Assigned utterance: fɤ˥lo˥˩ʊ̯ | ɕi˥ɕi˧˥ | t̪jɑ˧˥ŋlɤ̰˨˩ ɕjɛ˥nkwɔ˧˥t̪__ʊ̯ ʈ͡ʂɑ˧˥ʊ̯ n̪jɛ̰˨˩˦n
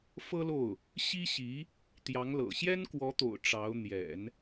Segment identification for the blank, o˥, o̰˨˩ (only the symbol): o̰˨˩